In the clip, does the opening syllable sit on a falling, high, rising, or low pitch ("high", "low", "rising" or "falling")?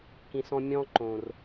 low